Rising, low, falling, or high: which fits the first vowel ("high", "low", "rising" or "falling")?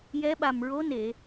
rising